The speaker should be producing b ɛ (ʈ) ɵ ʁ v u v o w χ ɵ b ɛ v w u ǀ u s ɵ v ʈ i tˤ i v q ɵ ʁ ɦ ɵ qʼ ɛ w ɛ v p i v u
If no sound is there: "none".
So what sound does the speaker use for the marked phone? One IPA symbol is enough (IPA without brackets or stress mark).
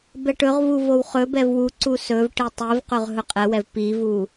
ʈ